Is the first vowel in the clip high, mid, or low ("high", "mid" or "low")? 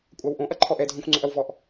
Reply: low